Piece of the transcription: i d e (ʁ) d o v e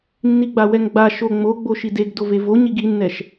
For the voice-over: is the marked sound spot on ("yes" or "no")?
no